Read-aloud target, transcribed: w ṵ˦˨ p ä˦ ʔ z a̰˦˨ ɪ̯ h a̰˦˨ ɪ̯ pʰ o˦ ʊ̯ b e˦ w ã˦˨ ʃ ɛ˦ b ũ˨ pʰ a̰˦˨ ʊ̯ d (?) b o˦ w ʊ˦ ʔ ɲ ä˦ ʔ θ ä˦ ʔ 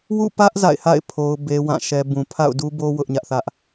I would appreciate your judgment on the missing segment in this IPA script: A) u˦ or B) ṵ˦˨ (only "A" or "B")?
A